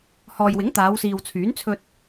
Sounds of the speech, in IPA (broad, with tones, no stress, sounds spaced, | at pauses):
h ɔː˨ j w ɪ˨˥ ŋ t̪ aː˨˧ w s iː˨ w t͡sʰ yː˨˥ n t͡sʰ ɵ˧ t̚